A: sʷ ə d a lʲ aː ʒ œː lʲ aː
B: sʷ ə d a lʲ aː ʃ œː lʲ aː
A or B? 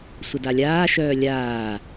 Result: B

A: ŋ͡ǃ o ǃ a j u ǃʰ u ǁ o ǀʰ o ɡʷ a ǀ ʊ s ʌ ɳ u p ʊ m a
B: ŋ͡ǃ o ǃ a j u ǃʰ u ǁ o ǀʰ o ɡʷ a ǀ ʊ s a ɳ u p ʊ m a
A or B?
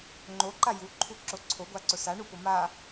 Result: B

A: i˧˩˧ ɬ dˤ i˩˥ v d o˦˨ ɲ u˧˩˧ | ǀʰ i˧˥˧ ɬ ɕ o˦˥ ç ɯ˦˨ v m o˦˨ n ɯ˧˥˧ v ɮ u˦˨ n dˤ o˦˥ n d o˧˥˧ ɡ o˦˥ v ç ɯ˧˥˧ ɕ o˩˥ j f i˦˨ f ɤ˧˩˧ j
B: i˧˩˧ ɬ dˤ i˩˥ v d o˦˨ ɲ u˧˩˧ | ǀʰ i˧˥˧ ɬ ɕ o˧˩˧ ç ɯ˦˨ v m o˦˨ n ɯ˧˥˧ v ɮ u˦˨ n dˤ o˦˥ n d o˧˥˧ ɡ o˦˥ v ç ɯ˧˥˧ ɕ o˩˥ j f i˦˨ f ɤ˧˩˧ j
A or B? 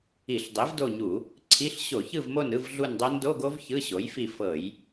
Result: B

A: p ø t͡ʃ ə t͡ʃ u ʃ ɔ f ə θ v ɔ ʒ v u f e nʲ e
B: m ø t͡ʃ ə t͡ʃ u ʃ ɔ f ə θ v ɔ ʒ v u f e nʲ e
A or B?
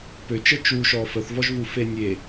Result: A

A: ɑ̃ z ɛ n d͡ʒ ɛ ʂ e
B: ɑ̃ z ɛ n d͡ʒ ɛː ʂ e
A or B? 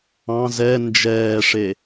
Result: B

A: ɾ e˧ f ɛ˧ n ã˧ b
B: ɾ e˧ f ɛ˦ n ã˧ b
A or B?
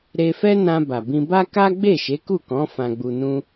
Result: B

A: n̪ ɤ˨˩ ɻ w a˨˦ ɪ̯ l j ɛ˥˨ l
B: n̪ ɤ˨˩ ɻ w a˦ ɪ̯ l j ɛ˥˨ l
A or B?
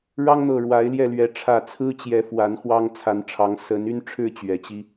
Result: A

